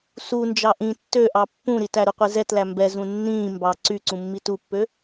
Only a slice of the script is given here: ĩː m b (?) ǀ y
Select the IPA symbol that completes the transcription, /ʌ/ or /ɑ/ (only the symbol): ɑ